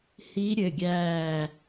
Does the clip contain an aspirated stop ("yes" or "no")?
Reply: no